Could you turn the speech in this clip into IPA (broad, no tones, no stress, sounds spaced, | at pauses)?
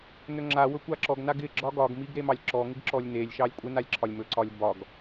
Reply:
n ɵ ŋ͡ǁ a w ɵ kʷ a ǁ ɔ ɡ n a ɡ ɪ ɡ͡ǁ ɒ ɡ ɒ ɡ m i ɡ ɾ e m ɑ lʲ ǁ ɔ ŋ ɪ ɡ ǁ ɔ lʲ n e lʲ ʃ ɑ lʲ kʷʼ ɪ n a lʲ ǁʰ ɒ lʲ m ɵ ǀ ɒ lʲ b ɒ ɡ